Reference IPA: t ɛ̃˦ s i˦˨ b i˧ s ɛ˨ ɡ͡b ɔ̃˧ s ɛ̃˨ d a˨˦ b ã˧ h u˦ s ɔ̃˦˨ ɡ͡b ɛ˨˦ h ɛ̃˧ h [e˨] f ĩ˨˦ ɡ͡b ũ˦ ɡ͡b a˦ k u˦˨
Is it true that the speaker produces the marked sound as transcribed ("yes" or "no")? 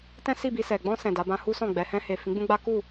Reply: yes